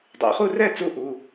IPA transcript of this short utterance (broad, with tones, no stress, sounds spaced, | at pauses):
dˤ ḛ˩˧ χ u˥˩ r ɛ˥˩ t͡s u˧ ʔ u˩˧˩